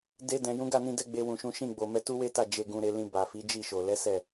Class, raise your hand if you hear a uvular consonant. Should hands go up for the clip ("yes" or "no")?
no